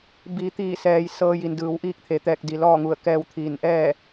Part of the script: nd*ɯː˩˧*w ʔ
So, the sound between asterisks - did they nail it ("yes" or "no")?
yes